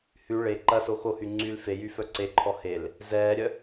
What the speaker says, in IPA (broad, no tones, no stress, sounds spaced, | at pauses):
h y ɭ e ǃ ɐ s o x o h y ŋ͡ǀ y l f e j y f œ ǀ e ǃʰ ɔ h e l | z ɛː ɾʲ œ